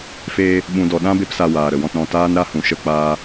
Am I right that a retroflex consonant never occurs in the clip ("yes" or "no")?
yes